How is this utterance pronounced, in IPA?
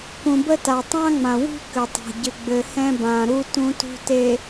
k ũ˨ b ə˦ t a˨ tˤ ã˦ ŋ͡m ã˨ w ṳ˦ k ɘ˨ tˤ a̤˨ ɟ ɘ˨ ɡ͡b ɘ˨ h ɛ̃˦ b ã˨ ɾ u˦ t ũ˨ t ṳ˨ t e˨

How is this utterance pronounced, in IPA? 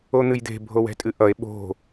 o n̪ ɨ j d̪ e̤ bʱ o w ɛ̤ tʼ ɨ ʔ ʌ e̯ ɓ o̤

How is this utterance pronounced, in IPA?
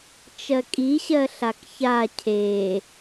t͡ʃ ɜ kʼ i ɕ ɜ ɬ a k ç a cʰ e

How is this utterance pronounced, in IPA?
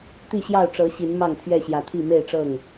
t̪ i˥˨ ɕ j ɑ˥˨ ʊ̯ ʈ͡ʂ ɤ˨˦ ɕ i˨˦ n m ɑ˥˨ ŋ t̪ʰ ɥ ɛ˥˨ ɕ j ä˨˦ t̪ʰ i˥˨ m e˥˨ ɪ̯ ʈ͡ʂ ɤ˥˨ ŋ

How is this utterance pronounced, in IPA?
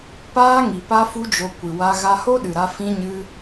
p aː˦ ŋ i˨ p a˦ f u˦ d͡ʒ o˧ kʷ ɨ˨ w a˧ ɣ a˧ h o˦ ɗ ɨ˨ ɾ a˧ f ĩ˦ ɲ ɨ˦

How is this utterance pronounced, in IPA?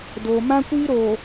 d oː˨ m ã˦ kʷ iː˦ ɾ oː˨

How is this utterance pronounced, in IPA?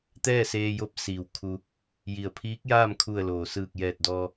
t̪ ɛː˥˨ s eː˧ j o˧˥ p̚ s iː˩ w kʰ u˧ | j i˩ ə̯ pʰ iː˧˥ k̚ j aː˥˨ m kʰ u˧˩ ə̯ l oː˩ s ɯː˧˩ k̚ j ɛː˧˩ t̚ d ɔː˧

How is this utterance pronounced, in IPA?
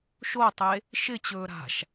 ʃ o tˤ e | ʃ ɪ t͡ɕ ɵː ɾ a̤ ʃ

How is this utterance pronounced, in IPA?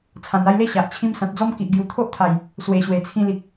t͡sʰ ã˨˩ n a˥˧ j l e˦ ɕ a˨ ʔ t͡ɕʰ ĩ˦ m s ã˨ t̚ d͡z ɔ˦ m k i˨ ʔ ɡ j u˨˩ t̪ʰ o˦ ʔ t̪ʰ a˨˩ j | s w e˨˩ ɕ w e˨˩ t͡sʰ ĩ˧ l i˨ k̚

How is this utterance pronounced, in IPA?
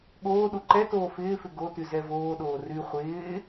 ɠ oː ɗ u ǃ ɛ t oː f ɪː f ɪ ɡ o t y z ɛ v oː ɗ oː r y χʷ ɪː

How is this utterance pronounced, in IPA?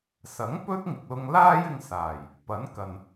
s ɐ˨˥ ŋ p ɵ˥ t̚ ŋ ɪ˨ k̚ l ʊ˧ ŋ l aː˥ j ɪ˧ ŋ s aː˨˩ j | p ɐ˨˥ n k ɐ˨ n

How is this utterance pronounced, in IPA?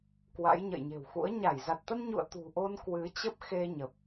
k w a̰˧˥ j ɲ ə̰˧˨ j ɲ e̤˨˩ w x ṵ˧˥ ə̯ ɲ a˧˩ j z a˨˩ t̚ t̪ ə˧ n ɲ ṵ˧˨ ə̯ t̪ ṳ˨˩ ʔ o˧ n k w ɨ˨˦ t͡ɕ ə˦˥ p̚ x e˧ ɲ ə˨˩ p̚

